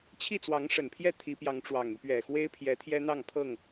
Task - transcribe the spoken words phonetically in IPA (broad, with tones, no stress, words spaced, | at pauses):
t͡ɕʰi˥˨t͡swɑ˨˦ŋʂə˨˩npʰjɛ˥˨ t̪ʰi˨˦pjɑ˨˦ŋʈ͡ʂwɑ˨˩ŋy˦ pɥɛ˨˩xwe˦ɪ̯pʰjɛ˨˦ t̪ʰjɛ˦n̪ɑ˥˨ŋpʰɤ˥˨ŋ